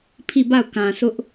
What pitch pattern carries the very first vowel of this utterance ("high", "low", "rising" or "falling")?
falling